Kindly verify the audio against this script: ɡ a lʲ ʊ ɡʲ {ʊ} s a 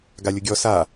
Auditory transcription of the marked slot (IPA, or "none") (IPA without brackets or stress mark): ɔ